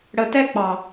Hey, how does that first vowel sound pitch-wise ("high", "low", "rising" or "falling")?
low